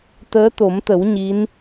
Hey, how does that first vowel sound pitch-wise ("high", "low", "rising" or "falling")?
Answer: rising